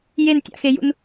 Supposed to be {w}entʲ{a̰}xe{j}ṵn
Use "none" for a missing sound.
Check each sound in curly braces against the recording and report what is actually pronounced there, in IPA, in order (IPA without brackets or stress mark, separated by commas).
j, a̰, j